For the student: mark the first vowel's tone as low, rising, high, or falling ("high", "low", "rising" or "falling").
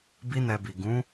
high